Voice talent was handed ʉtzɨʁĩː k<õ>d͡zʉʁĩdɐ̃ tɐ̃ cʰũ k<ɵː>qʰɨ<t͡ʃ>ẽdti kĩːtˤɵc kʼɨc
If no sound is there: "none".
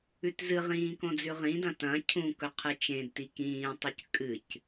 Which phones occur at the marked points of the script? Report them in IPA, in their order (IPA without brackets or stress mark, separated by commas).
õ, ɵ, t͡ʃ